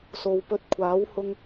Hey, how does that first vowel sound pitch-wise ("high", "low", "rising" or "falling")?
low